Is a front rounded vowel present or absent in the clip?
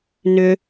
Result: present